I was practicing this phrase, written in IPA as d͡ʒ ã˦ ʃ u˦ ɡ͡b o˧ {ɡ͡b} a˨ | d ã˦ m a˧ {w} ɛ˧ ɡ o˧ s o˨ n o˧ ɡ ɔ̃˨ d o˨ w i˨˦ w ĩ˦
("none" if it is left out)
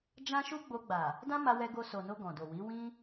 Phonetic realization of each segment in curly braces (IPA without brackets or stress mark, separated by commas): ɡ͡b, w